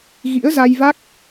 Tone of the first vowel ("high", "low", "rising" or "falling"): rising